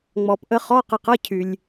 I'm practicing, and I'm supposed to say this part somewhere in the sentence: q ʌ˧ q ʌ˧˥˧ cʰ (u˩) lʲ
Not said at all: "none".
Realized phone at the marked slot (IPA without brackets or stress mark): y˩